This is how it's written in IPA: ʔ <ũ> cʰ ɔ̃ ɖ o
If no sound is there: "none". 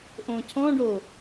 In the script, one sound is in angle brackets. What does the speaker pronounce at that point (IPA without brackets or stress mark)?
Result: õ